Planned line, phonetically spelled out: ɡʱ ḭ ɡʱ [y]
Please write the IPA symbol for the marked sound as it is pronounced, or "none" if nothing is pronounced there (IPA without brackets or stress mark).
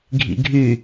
y